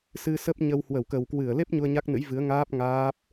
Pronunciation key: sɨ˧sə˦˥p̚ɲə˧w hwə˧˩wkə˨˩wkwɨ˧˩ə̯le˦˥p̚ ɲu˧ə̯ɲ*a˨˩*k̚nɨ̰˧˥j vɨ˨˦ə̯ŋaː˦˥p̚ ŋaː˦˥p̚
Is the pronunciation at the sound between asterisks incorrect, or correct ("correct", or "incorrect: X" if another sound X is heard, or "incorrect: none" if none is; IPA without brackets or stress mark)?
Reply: incorrect: a˦˥